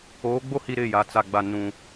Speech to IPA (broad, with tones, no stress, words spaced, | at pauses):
oː˨˦ɡ͡bo˦hi˨ ɾɪ˦˨ja˨ t͡sa˨ɡ͡ba˨ nũ˨